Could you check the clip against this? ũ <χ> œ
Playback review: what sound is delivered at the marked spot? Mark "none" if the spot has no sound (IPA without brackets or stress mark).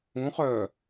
χ